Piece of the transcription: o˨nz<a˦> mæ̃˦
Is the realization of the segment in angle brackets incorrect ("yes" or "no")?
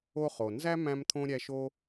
yes